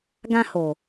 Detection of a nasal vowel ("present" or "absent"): present